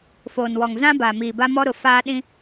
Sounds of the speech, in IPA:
f oː˨ n w ɔ˨ ŋ z ã˦ b a˨ m iː˨ b a˦ m ɔ˦ ɾ ʊ˨ f aː˦ ɗ ĩ˦

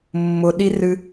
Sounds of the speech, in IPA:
mː ʊ ɗ i r ɨ

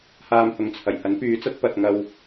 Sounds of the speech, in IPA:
h aː˧ m h ʊ˨ ŋ t͡sʰ ɐ˨˩ j h ɐ˨˥ n p yː˨˥ t͡s ɐ˨˥ t̚ p ɐ˨ t̚ ŋ ɐ˧ w

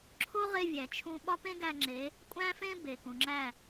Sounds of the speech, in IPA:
ǁʰ o˦ ʁ e˧ vʲ æ˨ t͡ʃʰ ũ˧ ɓ ɒ˦ p ẽ˦ ɡ æ˧ ŋ͡ǁ e˨˦ | kʷʼ æ̃˦ f ẽ˦ b e˨ k ũ˨ ŋ͡ǁ æ˦˨

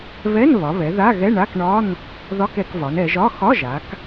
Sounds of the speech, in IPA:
β ɛ˧˥˧ n β ɒ˩˧ β ɛ˩˧ ð a˧˥˧ ɣ ɛ˧˥˧ ɳ a˧˥˧ k ɳ ɒ˧˥˧ n | ð ɒ˧˥˧ k ɛ˩˧ k v ɒ˩˧ n ɛ˩˧ ʒ ɒ˧˥˧ x ɒ˧˥˧ ʒ a˩˧ k

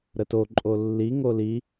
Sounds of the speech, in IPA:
ɾ ə t o ǃʼ o lː i ŋ o l i

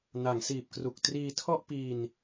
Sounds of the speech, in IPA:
n a˩˦ ŋ s iː˨˩ p̚ k r u˨˩ k̚ t r iː˧ tʰ ɔ˥˩ ʔ p iː˧ n

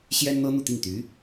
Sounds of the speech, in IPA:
ɕ j ɛ˥ n n̪ ɤ˥ n̪ u˥˧ t̪ i˥˩ ŋ t̪ y˧˥

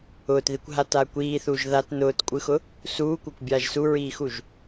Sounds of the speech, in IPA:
ʊː t ð i kʷ ɦ a t aː kʷ iː θ uː ʒ ð a t n ʊː t kʷʼ ɯ x ʊ | s uː kʷ a kʷ bʲ aː ʒ s u ɹ iː x u ʒ

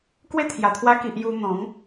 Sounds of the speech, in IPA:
k w e˥˧ t̪ʰ j a˨˩ t̪ʰ w a˧ k i˨ ʔ j u˧ n̪ ɔ̃˨˦ ŋ

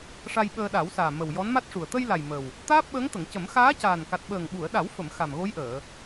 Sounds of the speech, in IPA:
ʂ a˧ j ɓ əː˧ ɗ a˨˩˦ w s aː˨˩ m ə˨˩ w j ɔ˧˥ n m a˦˥ t̚ ʂ u˨˩ ə̯ t̪ ə˧ j l a˨˩ j m ə˨˩ w | t̪ aː˦˥ p̚ ɓ əː˧˥ ŋ t̪ ə˨˩˨ ŋ c ə˨˩˦ m x aː˧˥ c aː˨˩ n k a˨˩ t̚ ɓ əː˨˩ ŋ ɓ u˨˩˨ ə̯ ɗ a˨˩˦ w f ə˨˩˨ m x a˨˩ m ɣ o˧˥ j ʔ əː˨˩˨

